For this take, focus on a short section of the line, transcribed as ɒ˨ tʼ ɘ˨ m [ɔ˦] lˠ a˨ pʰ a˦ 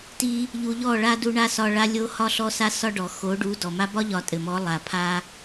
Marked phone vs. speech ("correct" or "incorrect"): incorrect